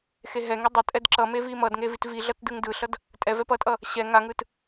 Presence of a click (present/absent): present